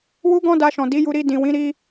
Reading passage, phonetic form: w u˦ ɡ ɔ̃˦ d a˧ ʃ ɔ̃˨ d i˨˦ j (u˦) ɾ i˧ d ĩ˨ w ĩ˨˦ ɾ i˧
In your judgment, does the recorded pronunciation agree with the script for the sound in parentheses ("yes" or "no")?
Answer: no